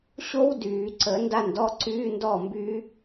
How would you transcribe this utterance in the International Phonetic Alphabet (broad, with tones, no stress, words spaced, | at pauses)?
ɕo˦˥w dyː˨˩˦ ǀə˨˩˦ nda˥˨ndɔ˦˥ ǀyː˧˥˧ndɔ˥˨mby˦˥